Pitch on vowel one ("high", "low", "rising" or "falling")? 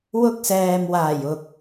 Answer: high